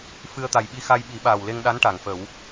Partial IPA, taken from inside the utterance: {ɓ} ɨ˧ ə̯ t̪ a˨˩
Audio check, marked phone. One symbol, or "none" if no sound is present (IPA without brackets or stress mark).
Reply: f